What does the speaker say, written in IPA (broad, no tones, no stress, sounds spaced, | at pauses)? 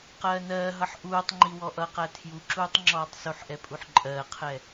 q ɜː n ɜː ɦ ʌ ħ ʔ uː tˤ ŋ͡ǃ i w ɔ ʔ ʌ q æ tʰ j u ǁ uː tˤ ŋ͡ǁ ɔː tˤ s u ħ ʔ ɛ pʼ u ħ ǃʼ ɜː qʰ ɛ